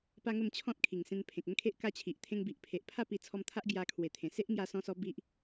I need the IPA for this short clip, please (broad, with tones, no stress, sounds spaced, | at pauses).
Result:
p a˦ ŋ ə˥˧ m t͡ɕʰ ɔ̃˦ t̚ kʰ i˨˩ ŋ s ẽ˧ n pʰ ẽ˨ k̚ ə˦ n kʰ e˦ ʔ k a˦ t͡ɕʰ i˨ ʔ t̪ʰ ẽ˧ ŋ b i˨ ʔ pʰ e˨ ʔ pʰ a˥˧ p i˧ t͡sʰ ɔ˧ m t̪ʰ a˦ ʔ ɡ j a˧ kʰ w e˨˩ t̪ʰ ẽ˨˩ s e˦ ʔ ŋ j a˧ s ɔ̃˧ s ɔ˧ b i˦ ʔ